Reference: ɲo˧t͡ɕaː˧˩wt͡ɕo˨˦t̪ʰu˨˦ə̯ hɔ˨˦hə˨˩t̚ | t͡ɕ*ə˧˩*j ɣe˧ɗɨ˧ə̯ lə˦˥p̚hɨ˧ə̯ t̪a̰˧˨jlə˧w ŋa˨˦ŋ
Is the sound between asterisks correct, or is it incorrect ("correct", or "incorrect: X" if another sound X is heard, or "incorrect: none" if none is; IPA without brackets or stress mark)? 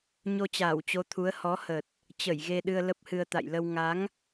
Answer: correct